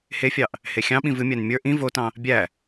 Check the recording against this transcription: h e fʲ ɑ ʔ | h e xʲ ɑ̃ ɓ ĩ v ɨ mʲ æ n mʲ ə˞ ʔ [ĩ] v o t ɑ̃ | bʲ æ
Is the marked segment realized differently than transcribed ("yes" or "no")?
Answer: no